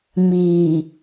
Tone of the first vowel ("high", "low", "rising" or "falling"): low